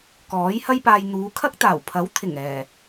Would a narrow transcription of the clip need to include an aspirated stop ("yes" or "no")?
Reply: yes